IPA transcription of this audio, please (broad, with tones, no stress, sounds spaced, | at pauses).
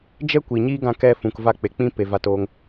d͡ʒ ɛ˦ kʷ i˨ ɲ iː˦ ɡ ã˧ k ɛ˧ f ũ˨ k v a˧ k͡p e˨ k͡p ĩ˦ p e˨ v a˧ t oː˧ ŋ